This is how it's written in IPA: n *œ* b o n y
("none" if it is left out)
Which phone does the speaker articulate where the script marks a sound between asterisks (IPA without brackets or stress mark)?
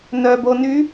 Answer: œ